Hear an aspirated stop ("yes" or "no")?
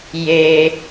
no